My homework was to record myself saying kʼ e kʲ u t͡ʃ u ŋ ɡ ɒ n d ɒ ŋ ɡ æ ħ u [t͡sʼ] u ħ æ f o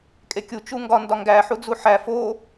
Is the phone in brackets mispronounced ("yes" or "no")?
yes